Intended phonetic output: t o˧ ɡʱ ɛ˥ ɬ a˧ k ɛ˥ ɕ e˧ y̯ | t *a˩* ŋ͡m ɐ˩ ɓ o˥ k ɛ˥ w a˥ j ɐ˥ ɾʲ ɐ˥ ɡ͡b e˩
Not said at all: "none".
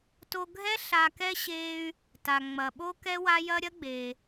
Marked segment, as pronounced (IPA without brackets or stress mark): a˩